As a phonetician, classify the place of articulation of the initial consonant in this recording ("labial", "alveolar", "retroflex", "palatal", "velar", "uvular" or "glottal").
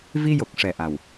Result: labial